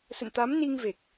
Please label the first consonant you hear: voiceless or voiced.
voiceless